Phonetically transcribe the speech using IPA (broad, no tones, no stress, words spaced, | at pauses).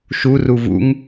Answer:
ʃuru vṵŋ